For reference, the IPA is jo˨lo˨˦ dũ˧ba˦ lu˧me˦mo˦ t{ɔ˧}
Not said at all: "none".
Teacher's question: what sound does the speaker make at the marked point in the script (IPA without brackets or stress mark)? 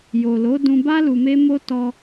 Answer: ɔ˧